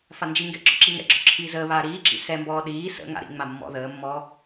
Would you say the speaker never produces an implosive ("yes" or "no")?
no